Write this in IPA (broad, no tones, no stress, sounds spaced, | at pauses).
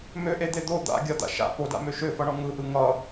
m ø ʔ e d̪ e d̪ o d̪ a̰ ɡʲ ʌ d̪ a̰ ʃ a̰ p o d a̰ m ø ʃ ø f ʌ ɳ ɔ ŋ ɯ ʔ ɯ ŋ ʌ